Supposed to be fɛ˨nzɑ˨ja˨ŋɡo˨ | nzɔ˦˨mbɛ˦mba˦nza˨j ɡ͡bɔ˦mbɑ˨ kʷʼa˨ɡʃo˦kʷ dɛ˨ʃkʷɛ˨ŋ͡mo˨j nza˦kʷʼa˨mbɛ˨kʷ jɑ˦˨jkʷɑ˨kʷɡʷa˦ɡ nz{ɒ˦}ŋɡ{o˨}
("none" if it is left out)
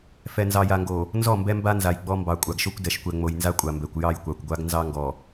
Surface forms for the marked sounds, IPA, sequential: ɑ˦, ɔ˨

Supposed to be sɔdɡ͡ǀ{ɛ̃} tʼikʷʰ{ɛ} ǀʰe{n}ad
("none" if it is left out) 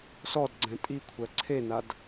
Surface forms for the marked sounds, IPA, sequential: ɛ̃, ɜ, n

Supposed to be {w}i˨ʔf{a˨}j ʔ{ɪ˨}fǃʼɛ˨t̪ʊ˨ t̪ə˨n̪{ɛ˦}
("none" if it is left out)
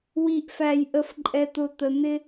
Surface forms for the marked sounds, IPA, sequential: w, æ˨, ə˨, ɪ˦

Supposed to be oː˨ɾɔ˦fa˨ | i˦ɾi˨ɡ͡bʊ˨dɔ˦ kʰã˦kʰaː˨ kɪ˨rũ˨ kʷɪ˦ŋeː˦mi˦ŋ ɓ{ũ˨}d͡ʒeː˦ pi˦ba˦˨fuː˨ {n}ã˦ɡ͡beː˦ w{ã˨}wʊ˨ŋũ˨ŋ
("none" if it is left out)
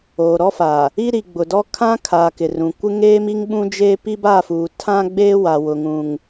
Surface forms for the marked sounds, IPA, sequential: ũ˦, tʰ, a˨

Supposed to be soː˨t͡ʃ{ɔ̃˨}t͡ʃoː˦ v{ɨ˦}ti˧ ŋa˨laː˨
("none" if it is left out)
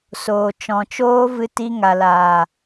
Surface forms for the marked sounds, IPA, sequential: ɔ̃˨, ɨ˧

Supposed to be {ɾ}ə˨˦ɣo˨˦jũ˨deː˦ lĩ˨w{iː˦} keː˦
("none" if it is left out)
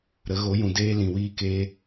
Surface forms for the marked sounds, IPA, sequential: ɾ, iː˦

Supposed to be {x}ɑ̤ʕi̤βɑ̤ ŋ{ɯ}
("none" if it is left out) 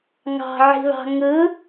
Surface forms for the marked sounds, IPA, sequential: ŋ, ɯ

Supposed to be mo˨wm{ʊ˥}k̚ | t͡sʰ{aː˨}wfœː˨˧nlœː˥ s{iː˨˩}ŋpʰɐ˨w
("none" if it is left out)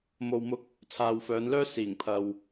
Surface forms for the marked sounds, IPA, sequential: ʊ˧, aː˨, iː˨˩

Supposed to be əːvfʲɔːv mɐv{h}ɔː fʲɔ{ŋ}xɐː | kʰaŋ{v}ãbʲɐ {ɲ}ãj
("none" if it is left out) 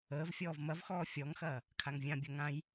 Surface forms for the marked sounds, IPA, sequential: x, ŋ, vʲ, ŋ

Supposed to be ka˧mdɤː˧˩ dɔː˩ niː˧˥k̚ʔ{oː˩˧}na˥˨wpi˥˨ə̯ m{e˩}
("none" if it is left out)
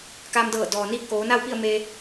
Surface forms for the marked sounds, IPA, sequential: oː˩˧, e˧

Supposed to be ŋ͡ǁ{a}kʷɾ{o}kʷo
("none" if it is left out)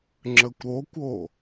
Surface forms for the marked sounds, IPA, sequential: ə, o

